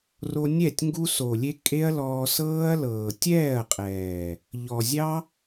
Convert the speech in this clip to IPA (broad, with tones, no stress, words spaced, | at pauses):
ro˧nʲɛ˦˨tʲ ŋɡu˧so˨lʲe˧ kʼe˦ɐ̯lɔː˧sɤː˦ɐ̯ lɤː˨tʲɛː˦˨ɐ̯qʼɛː˨ | ʎɔ˨zʲɑ˦